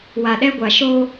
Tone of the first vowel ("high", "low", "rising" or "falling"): low